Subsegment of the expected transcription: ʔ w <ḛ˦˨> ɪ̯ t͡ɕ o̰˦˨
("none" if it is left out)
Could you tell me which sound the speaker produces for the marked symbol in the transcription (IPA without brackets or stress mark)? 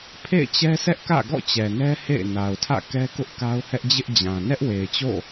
e˨